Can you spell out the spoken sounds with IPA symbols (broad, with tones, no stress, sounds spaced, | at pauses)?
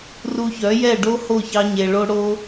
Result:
r u˧ ç œ˨˦ j ɛ˦˨ ɖ o˦ h o˦˨ ç ɑ˧ ɲ e˨ ɭ o˧ ɽ o˦